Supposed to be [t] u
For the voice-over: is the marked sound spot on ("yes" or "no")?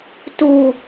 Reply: yes